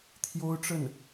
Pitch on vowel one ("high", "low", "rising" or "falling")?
high